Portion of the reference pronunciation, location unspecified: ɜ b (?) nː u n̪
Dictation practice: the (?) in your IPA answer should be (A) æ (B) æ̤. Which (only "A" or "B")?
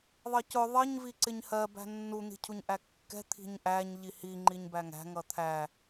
B